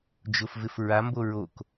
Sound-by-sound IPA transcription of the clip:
d͡ʒʊfvɪf ɹambo ɹok

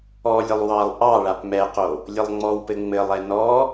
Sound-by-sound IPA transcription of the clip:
ɔlʲəlˠ wɑlˠ ʔɑɭap mɛqo | lʲɘlˠŋ͡mɔwpɘ ŋ͡mɘlˠɛ nɔ

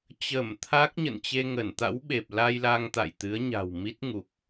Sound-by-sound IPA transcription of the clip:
t͡ɕə˧˩mt̪ʰa˦˥k̚ ɲə̰˧˨nt͡ɕe˧ŋə˧˩n t̪a̰˧˥wɓe˨˩p̚la˧jla˧ŋ t̪a̰˧˨jt̪ɨ˨˦ə̯ɲa̤˨˩w mi˦˥t̚ŋu˨˩k̚

